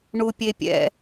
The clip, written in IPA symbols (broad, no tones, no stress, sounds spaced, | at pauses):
ɳ u pʲ e pʲ ɛ̰